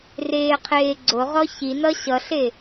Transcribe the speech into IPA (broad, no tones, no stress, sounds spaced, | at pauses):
r eː qʰ eː ɡ͡ǀ o ʁ ɔ ç i n ʌ ɕ ʌ ɬ e